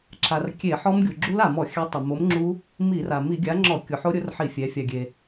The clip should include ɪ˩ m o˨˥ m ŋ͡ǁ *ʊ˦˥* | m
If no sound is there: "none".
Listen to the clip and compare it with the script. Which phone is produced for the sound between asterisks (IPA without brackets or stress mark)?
u˦˥